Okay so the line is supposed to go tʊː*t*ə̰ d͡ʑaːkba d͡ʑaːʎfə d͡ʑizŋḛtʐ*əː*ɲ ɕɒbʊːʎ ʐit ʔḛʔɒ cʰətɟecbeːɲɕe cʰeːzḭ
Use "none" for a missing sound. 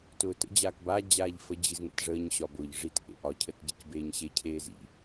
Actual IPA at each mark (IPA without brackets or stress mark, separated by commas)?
t, əː